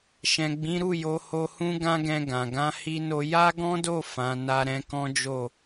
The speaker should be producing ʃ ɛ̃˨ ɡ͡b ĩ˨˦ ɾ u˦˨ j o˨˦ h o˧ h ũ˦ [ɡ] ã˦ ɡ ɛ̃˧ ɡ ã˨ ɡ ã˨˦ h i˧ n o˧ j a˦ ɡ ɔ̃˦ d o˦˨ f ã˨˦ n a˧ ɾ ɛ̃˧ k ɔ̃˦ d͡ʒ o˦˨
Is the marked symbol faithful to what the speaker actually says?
yes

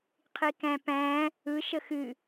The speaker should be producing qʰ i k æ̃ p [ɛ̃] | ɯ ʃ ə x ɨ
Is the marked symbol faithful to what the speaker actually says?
no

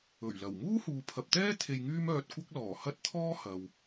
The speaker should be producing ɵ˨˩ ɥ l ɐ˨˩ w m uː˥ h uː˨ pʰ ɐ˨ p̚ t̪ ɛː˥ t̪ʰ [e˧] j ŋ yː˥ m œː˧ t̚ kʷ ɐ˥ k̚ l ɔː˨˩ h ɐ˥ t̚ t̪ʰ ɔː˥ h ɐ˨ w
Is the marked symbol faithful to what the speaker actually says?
yes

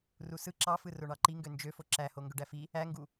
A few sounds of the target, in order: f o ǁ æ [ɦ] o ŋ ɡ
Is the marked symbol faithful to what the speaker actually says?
no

